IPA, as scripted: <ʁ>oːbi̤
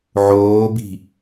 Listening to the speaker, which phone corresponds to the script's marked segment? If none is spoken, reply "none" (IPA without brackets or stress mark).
ʕ